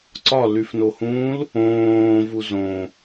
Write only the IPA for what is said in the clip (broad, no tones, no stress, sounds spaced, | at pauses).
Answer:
ǀ ɒ l y f n o h ũː l | õː v u z õ